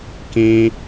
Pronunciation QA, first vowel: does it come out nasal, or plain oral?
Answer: nasal